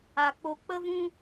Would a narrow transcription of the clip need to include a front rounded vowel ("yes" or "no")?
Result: no